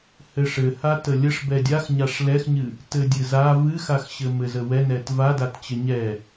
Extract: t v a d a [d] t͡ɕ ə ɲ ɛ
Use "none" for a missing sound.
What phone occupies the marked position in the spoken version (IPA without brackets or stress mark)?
t